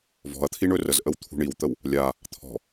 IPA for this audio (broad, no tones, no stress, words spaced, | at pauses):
vɔ̤ɐ̯t̪ʰi ɳɵrəzʔəw t̪ʰṳɳiwt̪əw | lʲa | t̪ʰɔ̤